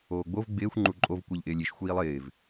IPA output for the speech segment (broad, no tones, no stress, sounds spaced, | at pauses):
oː ɡ͡b o v ɡ͡b ɪː xʷ ŋ͡ǃ u ǃʼ o v kʷ i ʎ ʔ ɪː lʲ i ʃ xʷ iː lˠ ɪː v